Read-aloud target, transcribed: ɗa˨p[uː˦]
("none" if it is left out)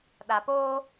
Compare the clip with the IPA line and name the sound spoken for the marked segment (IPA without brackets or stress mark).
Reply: oː˦